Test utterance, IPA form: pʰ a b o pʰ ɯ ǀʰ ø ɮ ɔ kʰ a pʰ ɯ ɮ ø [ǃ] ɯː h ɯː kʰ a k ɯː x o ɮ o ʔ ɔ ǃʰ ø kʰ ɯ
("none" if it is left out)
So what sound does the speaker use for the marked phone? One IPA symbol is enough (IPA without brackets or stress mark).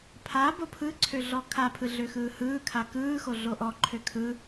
x